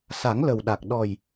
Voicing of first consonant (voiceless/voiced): voiceless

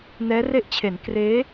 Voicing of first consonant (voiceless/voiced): voiced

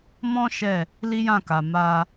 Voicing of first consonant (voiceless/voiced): voiced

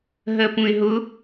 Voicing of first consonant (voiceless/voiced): voiced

